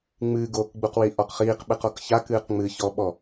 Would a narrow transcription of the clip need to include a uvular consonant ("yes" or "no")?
yes